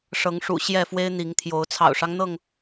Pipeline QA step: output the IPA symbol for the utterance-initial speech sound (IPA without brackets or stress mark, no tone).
ʂ